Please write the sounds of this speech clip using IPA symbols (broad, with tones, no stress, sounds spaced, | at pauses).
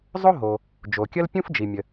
zˤ o˥ ɦ o˩ | d͡ʒ o˩ kʲ ə˥ l pʲ ũ˥ f d͡ʒ i˩ mʲ ə˩